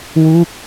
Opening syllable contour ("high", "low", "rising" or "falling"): falling